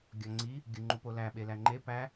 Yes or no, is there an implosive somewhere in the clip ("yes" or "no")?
yes